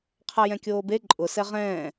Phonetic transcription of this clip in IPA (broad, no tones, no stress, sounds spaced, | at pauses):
qʰ a j ɛ̃ kʲ oː b e ǃʼ ʊ s ɛ ʁ ɛ̃ː